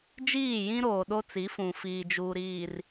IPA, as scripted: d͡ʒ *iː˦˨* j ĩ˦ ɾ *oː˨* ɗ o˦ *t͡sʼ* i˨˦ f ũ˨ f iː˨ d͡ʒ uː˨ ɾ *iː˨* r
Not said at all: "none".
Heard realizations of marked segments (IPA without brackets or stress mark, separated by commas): iː˦˨, oː˨, t͡s, iː˨